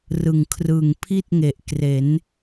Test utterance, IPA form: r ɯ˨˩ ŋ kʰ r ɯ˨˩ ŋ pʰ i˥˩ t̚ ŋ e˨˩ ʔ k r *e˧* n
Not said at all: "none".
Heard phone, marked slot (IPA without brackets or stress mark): e˩˦